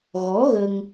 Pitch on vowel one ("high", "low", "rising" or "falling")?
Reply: rising